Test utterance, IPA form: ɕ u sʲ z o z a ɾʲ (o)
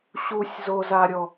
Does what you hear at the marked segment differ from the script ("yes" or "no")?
yes